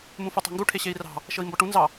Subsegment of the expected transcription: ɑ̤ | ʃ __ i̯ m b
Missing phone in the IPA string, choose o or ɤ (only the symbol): ɤ